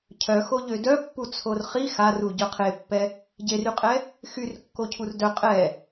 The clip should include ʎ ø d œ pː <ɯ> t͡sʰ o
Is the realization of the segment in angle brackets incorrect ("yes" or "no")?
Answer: yes